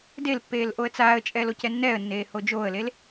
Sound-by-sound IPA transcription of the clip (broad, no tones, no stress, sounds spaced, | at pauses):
d e l pː eː l ʔ o ə̯ t͡s aː ə̯ t͡ʃʼ ɛː l o c ɛ nː ɛː ə̯ nː eː h o d͡ʒ oː ə̯ l e l